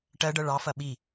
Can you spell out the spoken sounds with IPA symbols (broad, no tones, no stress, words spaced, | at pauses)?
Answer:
ʈɜɖɤ ɭɑfɐ ɓi